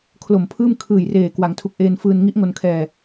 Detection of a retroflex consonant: absent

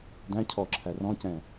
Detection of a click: present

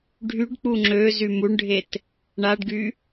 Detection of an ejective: absent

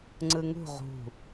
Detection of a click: present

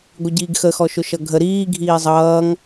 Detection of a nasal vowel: absent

